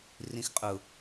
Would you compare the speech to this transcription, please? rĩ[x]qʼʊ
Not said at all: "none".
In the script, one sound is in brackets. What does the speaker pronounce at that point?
x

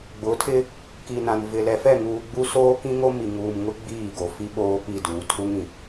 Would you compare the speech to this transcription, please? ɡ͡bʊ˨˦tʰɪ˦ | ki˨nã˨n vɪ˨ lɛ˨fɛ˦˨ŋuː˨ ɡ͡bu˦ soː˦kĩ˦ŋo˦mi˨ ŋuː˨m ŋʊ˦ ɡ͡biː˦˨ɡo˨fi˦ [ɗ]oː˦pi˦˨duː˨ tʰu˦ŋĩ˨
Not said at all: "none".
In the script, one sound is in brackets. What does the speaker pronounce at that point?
ɓ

